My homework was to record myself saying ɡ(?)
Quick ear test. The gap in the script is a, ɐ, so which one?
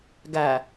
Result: a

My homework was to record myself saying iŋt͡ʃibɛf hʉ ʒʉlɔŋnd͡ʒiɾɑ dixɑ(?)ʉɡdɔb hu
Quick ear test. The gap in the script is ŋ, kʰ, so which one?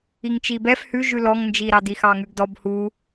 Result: ŋ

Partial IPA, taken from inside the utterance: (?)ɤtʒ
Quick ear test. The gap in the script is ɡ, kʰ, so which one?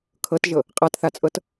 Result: kʰ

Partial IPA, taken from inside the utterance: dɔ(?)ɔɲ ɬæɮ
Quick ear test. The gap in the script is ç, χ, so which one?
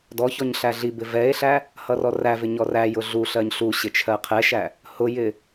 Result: ç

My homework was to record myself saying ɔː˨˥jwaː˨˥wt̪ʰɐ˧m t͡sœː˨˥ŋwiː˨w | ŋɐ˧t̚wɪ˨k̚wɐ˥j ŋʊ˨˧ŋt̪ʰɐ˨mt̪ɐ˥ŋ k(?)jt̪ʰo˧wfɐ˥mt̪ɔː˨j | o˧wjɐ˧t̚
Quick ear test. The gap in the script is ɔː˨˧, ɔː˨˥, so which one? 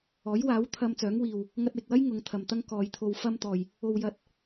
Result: ɔː˨˧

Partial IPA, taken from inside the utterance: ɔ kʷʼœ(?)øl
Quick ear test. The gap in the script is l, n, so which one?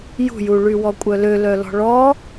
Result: l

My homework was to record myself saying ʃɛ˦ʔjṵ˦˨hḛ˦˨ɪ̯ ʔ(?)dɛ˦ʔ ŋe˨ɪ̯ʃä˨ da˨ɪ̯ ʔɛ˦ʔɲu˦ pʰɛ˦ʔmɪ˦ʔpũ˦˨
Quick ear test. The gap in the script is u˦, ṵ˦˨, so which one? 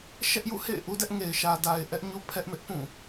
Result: u˦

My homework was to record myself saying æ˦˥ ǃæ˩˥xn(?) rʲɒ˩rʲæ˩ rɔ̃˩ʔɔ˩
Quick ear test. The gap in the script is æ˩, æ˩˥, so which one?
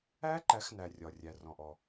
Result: æ˩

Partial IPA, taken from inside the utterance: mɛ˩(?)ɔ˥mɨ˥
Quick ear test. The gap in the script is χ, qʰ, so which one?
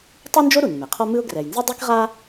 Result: qʰ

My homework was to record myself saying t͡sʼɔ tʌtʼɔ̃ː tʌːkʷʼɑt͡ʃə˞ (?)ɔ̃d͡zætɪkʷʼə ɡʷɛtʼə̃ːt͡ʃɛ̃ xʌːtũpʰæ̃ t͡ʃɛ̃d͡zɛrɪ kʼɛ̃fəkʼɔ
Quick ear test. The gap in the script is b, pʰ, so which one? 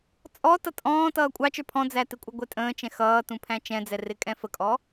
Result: pʰ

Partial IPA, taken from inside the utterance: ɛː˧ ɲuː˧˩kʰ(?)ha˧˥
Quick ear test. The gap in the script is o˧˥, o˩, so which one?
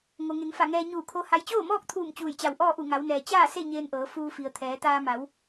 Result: o˧˥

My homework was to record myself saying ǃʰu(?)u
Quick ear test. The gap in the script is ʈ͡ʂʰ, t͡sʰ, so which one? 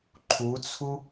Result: t͡sʰ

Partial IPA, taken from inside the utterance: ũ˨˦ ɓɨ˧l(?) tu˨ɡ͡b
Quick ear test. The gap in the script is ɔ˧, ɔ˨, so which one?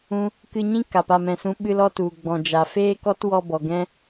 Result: ɔ˧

